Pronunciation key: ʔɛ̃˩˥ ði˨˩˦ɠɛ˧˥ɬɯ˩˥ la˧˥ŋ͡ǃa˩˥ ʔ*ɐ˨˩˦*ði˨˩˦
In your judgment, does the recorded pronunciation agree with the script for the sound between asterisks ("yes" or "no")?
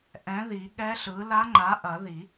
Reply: yes